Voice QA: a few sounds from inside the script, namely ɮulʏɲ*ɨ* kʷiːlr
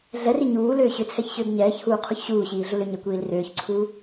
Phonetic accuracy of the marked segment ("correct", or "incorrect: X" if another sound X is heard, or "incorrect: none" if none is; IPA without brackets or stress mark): incorrect: ɛ